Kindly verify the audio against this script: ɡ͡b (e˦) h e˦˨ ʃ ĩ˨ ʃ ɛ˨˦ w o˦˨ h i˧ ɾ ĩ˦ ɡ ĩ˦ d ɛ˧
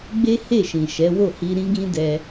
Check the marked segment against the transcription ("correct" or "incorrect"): correct